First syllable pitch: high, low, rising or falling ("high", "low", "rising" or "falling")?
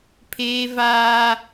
high